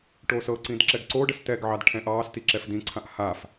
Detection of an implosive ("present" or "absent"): absent